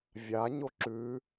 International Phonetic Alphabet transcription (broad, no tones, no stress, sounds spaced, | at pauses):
vʲ a ɲ o ǁ ʉ